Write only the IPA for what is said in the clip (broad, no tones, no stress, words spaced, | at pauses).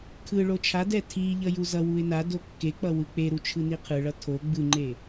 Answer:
kʰɯɭo t͡ʃʰadɛ tʰiʎʌ juzʌwuɪ̯ na dokːek͡pʌ wɯk͡peɾu t͡ʃʰɯniqʰɯɭʌ tʰo ɡ͡bɯŋ͡ǃe